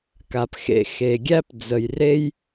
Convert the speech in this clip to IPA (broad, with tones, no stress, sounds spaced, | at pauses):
k a˩ p x ḛ˩ x e˩ ɡʲ æ˥ p d͡z ə˩ j r e˦ j